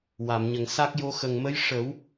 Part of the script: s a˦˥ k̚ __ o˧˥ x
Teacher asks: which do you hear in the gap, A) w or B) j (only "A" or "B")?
B